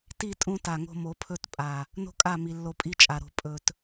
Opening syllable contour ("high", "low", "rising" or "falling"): falling